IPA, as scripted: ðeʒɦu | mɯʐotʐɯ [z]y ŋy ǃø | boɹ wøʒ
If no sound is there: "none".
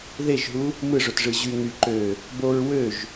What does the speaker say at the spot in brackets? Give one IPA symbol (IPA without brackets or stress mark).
ʑ